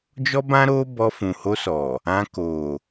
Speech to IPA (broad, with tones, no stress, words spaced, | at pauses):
d͡ʒɔ˦bã˦ɾo˦ bɔ˧fũ˨ho˧sɔ˨ | ã˧ko˨